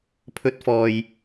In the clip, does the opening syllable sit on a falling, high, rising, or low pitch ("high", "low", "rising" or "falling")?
high